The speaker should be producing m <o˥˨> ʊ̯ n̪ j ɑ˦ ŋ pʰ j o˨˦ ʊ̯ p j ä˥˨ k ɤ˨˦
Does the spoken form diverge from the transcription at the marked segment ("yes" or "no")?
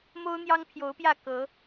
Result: yes